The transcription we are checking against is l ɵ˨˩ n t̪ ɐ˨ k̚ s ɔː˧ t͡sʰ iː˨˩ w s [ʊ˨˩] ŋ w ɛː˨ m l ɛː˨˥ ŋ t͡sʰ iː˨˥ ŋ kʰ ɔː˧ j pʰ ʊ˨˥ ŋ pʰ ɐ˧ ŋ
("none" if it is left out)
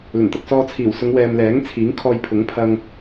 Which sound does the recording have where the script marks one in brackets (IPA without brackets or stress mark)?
ʊ˨˧